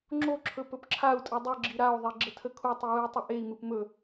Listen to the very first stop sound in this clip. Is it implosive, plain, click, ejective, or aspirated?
click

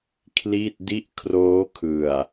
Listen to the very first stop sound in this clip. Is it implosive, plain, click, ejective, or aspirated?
aspirated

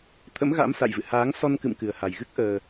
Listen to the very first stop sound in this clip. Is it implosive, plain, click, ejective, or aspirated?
aspirated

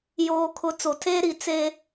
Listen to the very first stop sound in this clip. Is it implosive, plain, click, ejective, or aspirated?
aspirated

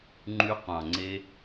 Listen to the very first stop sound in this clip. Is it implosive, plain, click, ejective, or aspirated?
click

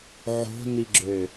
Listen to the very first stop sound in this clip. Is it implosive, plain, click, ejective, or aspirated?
click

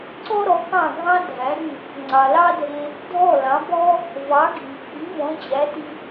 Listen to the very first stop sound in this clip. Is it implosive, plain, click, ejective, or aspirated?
click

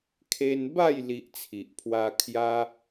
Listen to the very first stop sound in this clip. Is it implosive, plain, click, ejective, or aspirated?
aspirated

